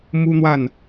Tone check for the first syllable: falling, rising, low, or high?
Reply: high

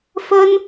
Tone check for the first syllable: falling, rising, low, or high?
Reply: high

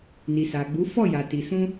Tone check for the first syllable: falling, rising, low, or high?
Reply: low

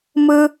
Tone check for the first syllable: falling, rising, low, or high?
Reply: high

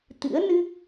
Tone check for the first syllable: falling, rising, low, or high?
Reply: rising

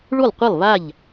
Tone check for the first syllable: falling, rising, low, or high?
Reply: falling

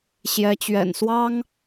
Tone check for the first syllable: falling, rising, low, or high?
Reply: rising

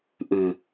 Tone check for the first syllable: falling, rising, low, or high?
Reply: low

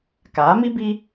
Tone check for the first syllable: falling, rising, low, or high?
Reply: rising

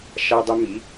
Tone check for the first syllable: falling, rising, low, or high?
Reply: high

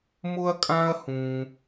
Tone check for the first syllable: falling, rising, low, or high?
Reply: high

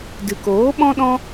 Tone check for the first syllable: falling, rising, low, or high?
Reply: low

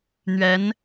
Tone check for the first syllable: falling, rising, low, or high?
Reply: rising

